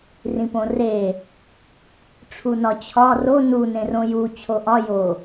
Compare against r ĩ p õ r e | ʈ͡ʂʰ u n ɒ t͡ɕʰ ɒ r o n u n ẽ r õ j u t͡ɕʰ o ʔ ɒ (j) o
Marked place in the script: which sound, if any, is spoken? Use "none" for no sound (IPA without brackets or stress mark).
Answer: j